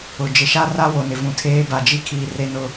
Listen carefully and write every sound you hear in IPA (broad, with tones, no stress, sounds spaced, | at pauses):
ʊ˨ d͡ʒ ɪ˨ ʃ a˦ r a˦ w o˨ n ɪ˨ v ũ˨ tʰ eː˦ b a˨ d͡ʒ i˦ kʰ iː˨ r e˦ n ʊ˦